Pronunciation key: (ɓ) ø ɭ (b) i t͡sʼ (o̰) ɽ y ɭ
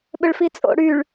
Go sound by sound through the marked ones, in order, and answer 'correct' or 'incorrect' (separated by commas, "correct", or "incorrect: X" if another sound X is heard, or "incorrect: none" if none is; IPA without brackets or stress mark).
correct, incorrect: f, correct